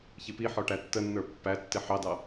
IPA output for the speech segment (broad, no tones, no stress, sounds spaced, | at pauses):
ç i p i ħ ɔ ʈ æ tː ə nː ə˞ pː æ tː ɪ ħ ɑ d ɑ